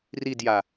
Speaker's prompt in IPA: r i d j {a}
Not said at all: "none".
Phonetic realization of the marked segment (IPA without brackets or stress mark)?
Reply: a